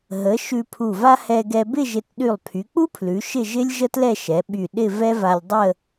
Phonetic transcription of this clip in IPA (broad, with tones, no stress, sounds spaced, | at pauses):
ɦ ə˩˧ ʃ ʉ˧ pʰ u˧˩ v a˥ h ɛ˧ ɡ ɛ˧ b ɪ˥˧ ʒ ɪ˧˩ t ɗ y˧˩ lˠ pʰ y˩˧ k͡p u˥ pʰ l ʉ˩˧ ʃ ɪ˥˧ ʒ ɪ˥ lʲ ʒ ə˥ t l ɛ˥˧ ʃ ɛ˩˧ ɓ y˧˩ ɗ ɪ˥˧ v ɛ˥ v a˧ lʲ dˤ ə˥˧